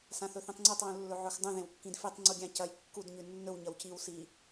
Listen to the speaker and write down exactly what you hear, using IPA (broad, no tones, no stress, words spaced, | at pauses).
sãθɵθĩtˤŋ͡ǀutˤ wũlːɵʕɵxdˤũ ðẽwkːĩdfitˤ ŋ͡ǀuɡʲãcɐj kːud ɲʉnːɵw ɲɐwciw si